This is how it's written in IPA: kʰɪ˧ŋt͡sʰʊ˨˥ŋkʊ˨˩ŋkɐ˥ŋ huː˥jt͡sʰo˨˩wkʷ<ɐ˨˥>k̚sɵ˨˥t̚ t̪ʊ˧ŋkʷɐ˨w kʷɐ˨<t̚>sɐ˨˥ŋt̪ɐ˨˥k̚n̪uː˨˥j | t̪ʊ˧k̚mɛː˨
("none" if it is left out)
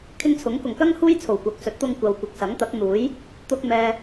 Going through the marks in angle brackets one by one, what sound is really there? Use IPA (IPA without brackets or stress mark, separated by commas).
ɐ˨˥, k̚